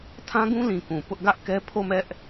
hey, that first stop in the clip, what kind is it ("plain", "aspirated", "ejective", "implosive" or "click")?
aspirated